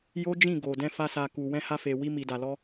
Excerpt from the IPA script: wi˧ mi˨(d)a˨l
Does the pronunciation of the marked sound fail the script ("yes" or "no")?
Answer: no